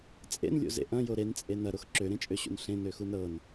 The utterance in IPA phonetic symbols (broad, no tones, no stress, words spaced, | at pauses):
t͡sʼḛnlʲo̰zḛ ʔɐ̃jo ɾent͡sʼe nɐɾox ǁøɾẽt͡ʃʼøɕṵn ɬẽnøxun ɾɤn